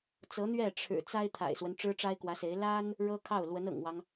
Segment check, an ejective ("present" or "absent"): absent